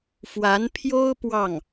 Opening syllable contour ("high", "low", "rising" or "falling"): rising